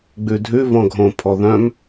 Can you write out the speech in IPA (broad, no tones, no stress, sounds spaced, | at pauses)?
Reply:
ɡ͡b ʉ dʱ ʉ v ɔ̃ ɡʱ õ pʰ ɔ ð œ̃ m